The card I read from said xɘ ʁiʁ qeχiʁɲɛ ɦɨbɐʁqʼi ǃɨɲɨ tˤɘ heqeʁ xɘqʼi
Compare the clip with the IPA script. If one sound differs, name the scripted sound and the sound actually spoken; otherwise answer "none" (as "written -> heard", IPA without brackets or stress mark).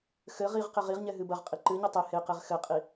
χ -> ʁ